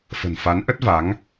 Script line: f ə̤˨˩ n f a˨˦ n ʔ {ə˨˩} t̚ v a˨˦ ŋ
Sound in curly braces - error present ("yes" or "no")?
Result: yes